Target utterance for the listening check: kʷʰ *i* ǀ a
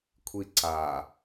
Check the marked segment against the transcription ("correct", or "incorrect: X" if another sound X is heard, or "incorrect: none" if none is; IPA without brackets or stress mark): correct